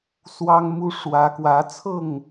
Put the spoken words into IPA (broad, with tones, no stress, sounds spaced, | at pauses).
s w ɑ˦ ŋ m u˦ ʂ w ä˨˦ k w ä˨˦ t͡sʰ ɤ˥˨ ŋ